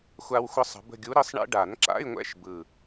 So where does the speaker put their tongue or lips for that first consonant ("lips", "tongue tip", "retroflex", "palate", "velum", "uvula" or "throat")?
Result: velum